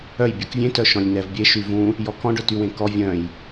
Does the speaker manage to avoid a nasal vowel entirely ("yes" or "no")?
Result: no